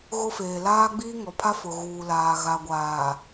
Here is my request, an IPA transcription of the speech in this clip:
ɣʊ˦feː˨ laː˦ɡ͡biː˦ŋɔ˨pʰa˦ fʊ˨ɣuː˨laː˨ ɣa˨ɡʷaː˨

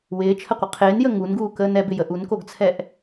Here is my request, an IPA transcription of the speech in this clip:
wɪːt͡ʃʰəqʷɪ qʰɪːnjə ŋunɡuːkəːn ɛbɪjə ʔunkoɡt͡sʰɛʔ

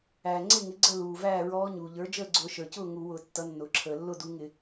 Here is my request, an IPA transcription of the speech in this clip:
æː˩ŋ͡ǀɪ˥˨ŋɪ˩˥ ɡ͡ǀə˥˨luː˩ væː˥˨ɹɔː˧˥ ɲuː˩ʎə˞˩˥d͡ʒəː˥˨ ɡ͡ǀʊː˧˩˧ʃə˞˩cʊː˥˨ ŋu˧˩˧wʊː˧˩˧tːʌ˩˥ nːʊː˩ǁʰəː˩lːʊ˥˨ du˧˥ ŋɪ˧˩˧

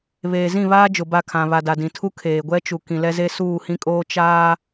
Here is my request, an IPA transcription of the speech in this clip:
βeː˨zĩ˦˨βaː˦d͡ʒʊ˨ ba˦˨kʰã˨ βa˨da˨dĩ˨tʰu˦ kʰeː˨ɡʷɛ˦t͡ʃu˨ kĩ˨lɛ˦ze˦ suː˦˨hĩ˦kʼoː˦ t͡ʃaː˦

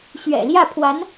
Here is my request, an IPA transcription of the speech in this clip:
ɕɥɛ̰˨˩ljä˥˩pʰwa˧˥n

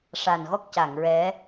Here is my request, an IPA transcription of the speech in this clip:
ʂa˨˩nɣɔ˦˥k̚ca˨˩˨ŋ ɹɛ˧˥

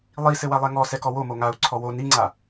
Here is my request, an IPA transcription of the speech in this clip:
lˠisɘ walˠɛŋɔsɛ kɔwomo ŋau̯ǀʰɔ wo niŋ͡ǀa

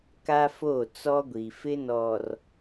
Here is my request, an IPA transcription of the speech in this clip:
ka˦fo˦˨ t͡sɔ˦ɡʷi˨ fɪ˦nɔ˨r

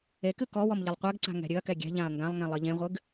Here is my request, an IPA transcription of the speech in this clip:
ekɨ kɔwɔm ʎɨlˠqʷɛɡǀa̤ ŋɛ̤ɾʲɨɐ̯kɛ ɡʲɛ̤ʎãɐ̯ ŋɡãlˠŋẽ lˠɨʎẽʁʷɨɡ

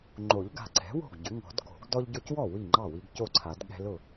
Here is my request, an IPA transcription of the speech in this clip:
ŋ͡ǃo˨˩˦ʎɡa̤˨ǀɛ̤˩˥ wo̤˥˩ɡɟʏ˩˥ŋɔ̤˨˩˦d ko̤˨˩˦ɡ dɔ˦ʎɟo˦cwɔ˥˩ wi˥˩ŋ͡ǃɑ˥˩ wi˦ɡco˥˩ǀʰa˨˩˦dɠɛ̤˦ lʊ˥˩

